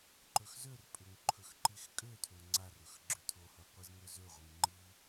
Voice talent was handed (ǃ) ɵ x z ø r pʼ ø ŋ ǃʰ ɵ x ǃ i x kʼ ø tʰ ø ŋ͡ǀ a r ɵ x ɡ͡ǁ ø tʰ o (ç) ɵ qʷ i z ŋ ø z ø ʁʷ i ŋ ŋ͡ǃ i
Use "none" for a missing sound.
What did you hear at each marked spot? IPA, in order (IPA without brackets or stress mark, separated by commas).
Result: ǃ, h